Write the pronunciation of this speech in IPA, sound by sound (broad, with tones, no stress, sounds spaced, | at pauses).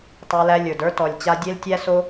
tˤ ə˞˧ l æ˧ lʲ ə˞˨ d ə˞˦ t ɔ˨ lʲ t͡ɕ a˧ dʲ e˦ l tʲ æ˦ s o˦